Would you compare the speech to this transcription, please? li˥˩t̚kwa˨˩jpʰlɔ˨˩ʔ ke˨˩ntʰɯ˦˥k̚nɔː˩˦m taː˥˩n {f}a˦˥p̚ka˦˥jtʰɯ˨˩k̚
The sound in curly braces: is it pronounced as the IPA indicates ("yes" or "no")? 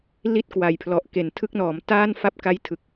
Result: yes